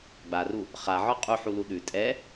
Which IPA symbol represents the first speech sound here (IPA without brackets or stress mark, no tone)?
ɡ͡b